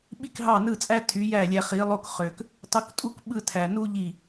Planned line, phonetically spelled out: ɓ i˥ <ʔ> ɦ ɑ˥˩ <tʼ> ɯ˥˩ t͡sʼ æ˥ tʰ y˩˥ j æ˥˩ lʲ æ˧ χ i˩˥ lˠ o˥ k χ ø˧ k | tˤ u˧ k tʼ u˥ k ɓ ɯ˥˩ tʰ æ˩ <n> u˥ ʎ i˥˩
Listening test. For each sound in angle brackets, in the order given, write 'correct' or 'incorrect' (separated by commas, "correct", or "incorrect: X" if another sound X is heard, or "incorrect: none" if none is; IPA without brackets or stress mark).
incorrect: k, incorrect: n, correct